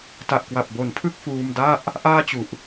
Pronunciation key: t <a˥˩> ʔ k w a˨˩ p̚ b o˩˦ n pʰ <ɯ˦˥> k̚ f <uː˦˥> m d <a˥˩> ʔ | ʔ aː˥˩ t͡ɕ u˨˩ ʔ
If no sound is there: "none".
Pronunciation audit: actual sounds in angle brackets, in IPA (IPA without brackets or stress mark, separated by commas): a˨˩, ɯ˥˩, uː˧, a˥˩